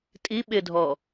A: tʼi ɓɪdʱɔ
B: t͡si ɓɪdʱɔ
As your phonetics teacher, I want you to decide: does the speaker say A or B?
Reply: A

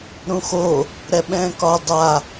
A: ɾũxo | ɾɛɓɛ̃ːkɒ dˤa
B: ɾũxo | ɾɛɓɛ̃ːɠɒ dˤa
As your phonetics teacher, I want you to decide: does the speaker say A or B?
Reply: A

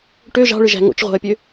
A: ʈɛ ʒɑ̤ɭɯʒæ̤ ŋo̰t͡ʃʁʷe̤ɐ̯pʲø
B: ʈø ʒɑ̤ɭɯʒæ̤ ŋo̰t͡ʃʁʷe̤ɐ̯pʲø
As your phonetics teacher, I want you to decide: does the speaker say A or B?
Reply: B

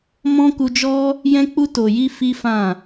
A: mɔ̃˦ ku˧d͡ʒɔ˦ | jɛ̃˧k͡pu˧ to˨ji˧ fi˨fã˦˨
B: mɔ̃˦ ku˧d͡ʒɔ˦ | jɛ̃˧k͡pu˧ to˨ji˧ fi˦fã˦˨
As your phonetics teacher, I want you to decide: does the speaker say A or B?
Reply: B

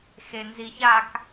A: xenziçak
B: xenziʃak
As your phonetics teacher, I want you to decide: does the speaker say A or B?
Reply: A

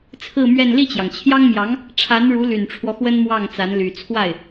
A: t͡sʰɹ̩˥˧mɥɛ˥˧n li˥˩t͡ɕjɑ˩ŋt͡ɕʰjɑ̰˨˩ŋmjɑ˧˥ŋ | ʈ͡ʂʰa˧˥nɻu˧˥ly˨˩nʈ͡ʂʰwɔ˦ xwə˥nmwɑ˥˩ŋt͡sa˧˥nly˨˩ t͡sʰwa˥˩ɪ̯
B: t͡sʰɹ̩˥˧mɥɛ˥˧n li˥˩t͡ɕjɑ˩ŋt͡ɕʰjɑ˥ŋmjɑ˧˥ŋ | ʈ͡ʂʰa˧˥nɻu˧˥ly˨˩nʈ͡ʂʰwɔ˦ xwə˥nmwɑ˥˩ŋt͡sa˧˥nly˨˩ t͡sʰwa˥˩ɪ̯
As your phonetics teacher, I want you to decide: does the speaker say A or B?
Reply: B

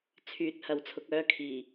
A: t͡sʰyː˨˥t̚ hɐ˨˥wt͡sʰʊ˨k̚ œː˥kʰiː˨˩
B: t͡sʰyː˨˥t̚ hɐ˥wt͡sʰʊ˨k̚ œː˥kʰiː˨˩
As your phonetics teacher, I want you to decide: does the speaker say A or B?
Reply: A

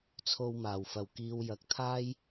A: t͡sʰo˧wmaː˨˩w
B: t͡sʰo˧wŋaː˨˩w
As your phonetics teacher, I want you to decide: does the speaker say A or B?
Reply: A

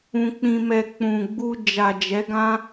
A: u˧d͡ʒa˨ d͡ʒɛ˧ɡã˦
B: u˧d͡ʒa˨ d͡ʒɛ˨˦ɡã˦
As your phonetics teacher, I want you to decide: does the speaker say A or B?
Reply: B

